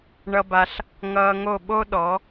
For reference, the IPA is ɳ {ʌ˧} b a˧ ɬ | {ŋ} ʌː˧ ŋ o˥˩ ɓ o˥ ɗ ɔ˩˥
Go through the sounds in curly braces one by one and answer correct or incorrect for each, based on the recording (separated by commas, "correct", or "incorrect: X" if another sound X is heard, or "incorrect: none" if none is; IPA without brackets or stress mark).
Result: correct, correct